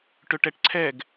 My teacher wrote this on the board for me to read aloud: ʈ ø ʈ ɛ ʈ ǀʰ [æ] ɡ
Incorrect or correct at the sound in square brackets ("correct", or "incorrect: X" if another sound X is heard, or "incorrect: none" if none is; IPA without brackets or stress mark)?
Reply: incorrect: ɛ